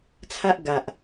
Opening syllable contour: high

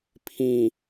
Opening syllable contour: low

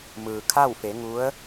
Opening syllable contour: low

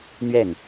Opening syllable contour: falling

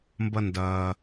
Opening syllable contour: high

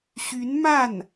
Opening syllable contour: rising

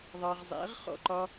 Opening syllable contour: low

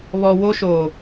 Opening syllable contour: low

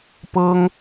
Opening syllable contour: high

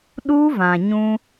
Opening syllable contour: high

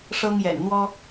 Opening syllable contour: high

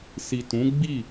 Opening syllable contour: low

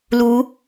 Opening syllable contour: rising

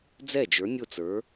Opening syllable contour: falling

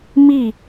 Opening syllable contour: falling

